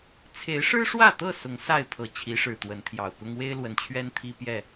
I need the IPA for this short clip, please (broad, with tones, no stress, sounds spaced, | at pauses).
t͡sʰ e˨˦ ɪ̯ ʂ ɻ̩˦ ʂ w ä˥˨ t̪ ɤ˥˨ s ʊ˨˦ ŋ s a˥˨ ɪ̯ pʰ ɤ˨˩ t͡ɕʰ i˨˦ ʂ ɻ̩˨˩ t̪ w ə˨˦ n t̪ʰ j ɑ˨˩ ʊ̯ k ʊ˦ ŋ w e˦ ɪ̯ l w ə˨˩ n t͡ɕʰ ɥ ɛ˦ n t̪ʰ i˦ p j ɛ˥˨